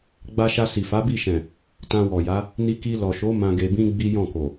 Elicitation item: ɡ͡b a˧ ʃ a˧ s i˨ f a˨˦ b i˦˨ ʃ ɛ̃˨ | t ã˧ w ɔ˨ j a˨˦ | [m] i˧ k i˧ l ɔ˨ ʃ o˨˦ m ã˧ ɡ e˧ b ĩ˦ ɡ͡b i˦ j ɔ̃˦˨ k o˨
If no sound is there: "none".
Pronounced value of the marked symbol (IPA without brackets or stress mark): n